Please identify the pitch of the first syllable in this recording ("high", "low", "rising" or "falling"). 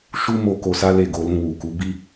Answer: high